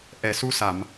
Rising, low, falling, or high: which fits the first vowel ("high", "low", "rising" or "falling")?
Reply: low